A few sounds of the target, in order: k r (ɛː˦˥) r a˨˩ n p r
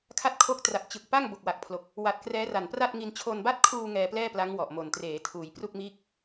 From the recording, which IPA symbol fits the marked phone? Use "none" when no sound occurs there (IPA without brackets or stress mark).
ɛː˦˥